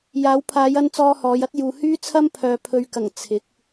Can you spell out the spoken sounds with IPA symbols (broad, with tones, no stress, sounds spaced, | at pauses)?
j aː˨˧ w pʰ aː˨˧ j ɐ˧ n t͡s ɔː˧ h ɔː˨˧ j ɐ˥ t̚ j uː˨ h yː˥ t͡sʰ ɐ˥ m pʰ œː˨ pʰ ɵ˨ ɥ k ɐ˨˩ ŋ t͡sʰ ɪ˨˥ k̚